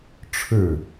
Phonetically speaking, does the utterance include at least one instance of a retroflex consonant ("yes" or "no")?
yes